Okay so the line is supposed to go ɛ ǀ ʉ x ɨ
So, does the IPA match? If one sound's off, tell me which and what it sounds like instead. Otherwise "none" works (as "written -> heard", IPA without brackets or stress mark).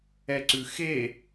ɨ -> e